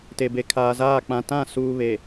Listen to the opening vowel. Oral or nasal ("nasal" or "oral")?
oral